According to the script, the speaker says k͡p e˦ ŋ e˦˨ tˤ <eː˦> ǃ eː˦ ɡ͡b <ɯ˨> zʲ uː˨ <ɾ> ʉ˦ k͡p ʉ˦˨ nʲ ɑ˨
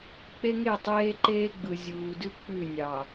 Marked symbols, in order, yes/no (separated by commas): yes, yes, no